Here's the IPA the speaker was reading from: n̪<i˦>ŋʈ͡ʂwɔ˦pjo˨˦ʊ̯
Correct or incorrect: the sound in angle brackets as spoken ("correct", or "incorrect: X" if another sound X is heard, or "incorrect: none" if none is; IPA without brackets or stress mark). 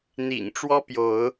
incorrect: ḭ˨˩